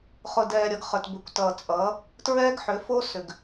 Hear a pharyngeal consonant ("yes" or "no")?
yes